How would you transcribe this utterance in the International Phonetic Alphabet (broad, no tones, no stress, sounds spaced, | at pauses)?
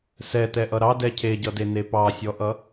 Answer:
s ɛ t ɛ ʔ ʌ ɾ ɑ d ɛ cʰ e ɟ ʌ d e n e p ɑ sʲ ɔ ʔ ʌ